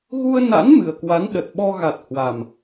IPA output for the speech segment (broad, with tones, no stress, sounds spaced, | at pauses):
ɣ u˧ ə̯ n a̰˧˥ n m ɨ˨˩ ə̯ k w a˨˦ n ɗ ə˨˩ t̚ ɓ ɔ˧ ɣ a˨˩ t̚ h w a˨˩ m